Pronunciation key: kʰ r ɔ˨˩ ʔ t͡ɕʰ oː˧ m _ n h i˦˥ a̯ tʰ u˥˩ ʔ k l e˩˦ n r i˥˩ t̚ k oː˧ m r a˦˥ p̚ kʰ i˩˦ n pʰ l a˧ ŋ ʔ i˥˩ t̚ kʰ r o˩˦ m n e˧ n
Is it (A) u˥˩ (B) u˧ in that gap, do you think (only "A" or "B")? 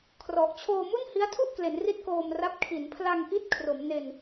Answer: A